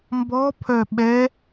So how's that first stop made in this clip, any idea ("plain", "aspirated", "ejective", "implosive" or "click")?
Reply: plain